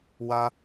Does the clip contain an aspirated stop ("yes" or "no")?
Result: no